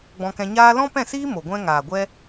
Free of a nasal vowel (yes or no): no